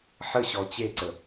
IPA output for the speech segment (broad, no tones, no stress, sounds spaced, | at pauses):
ħ ə ɕ ɔ t͡ɕ e ǀ ə